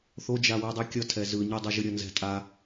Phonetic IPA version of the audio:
θod͡ʒawidˤi kʲʌtʰɛ zɯɲidˤɯ ʒɯɾʲʌnzɛ̤ tʼa

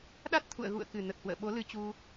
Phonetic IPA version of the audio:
ɗa˦˥t̚t̪ʰṵ˧˨ə̯ ɣṵ˧˨ə̯kɨ˨˩nə˨˩t̚ hwə̰ː˧˨ɓo˨˦lɨ˧ t͡ɕu˧

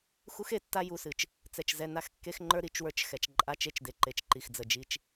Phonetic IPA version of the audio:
xu˦xe˨tːa˦ ju˨sɨ˨t͡ʃ | t͡sɛ˨t͡ʃ zɛ˨na˦˨xkːe˦xŋ͡ǃə˞˦ ɾi˨t͡ʃwə˞˦t͡ʃxɛ˨t͡ʃ ǃʼa˦t͡ʃe˦t͡ʃde˨ǃe˨t͡ʃ ǃi˨xd͡zə˨d͡ʒi˦t͡ʃ

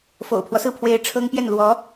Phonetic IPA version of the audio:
fo̰˨˩ʊ̯pʰwɔ˦sɹ̩˥˩pʰwe˧˥ɪ̯ ʈ͡ʂʰɤ˥ŋpjɛ˥˩n lwɔ˧˥

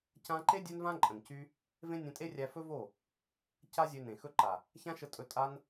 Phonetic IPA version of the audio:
cã˧ǃe˦ dʲø˦nvã˦ ǃʼə̃˨ncy˦ | vẽ˦nʲẽ˧tʼe˦rʲæ˧ fɵ˦vo˦˨ | ca˦zʲø˧nẽ˨ xɵ˧ǃa˨ | çã˦ʃə˧tʼɵ˧ tʼa˧n

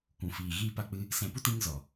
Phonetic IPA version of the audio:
kʷũ˨fiː˨ ɣiː˧pa˧k͡pɨ˧ | sɛ̃˧pu˦t ĩ˧ŋ zɔ˨

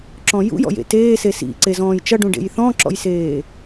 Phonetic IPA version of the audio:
ǁɔ̃jṵjɔ̰jḛ teːse sḭ ǀezɔ̃ːjt͡ʃʌɖũ ɖḛjθɔ̃ǁɔ̰jseː

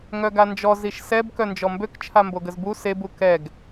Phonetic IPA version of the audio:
ŋœɡand͡ʒɔ ziʃsɛb kœnd͡ʒɔmbøk t͡ʃʰamboɡəzbu sebu kɛɡ

